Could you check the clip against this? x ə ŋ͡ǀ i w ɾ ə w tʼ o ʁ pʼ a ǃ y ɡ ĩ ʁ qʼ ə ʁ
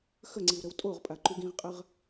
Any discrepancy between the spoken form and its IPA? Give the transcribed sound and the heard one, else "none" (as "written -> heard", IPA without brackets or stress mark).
none